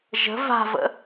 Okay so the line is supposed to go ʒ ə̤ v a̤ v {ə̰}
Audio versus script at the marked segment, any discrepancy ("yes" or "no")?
no